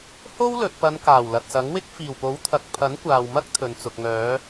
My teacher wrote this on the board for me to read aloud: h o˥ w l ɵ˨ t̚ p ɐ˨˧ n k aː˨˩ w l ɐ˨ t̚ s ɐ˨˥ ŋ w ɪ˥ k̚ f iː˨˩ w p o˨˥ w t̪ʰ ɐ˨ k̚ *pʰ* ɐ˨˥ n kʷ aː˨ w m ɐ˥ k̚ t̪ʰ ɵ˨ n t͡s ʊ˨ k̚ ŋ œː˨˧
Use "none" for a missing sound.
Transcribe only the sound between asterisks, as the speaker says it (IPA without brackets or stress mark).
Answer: pʰ